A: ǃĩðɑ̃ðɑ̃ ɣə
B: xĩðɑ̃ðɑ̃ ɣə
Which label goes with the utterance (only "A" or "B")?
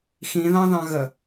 B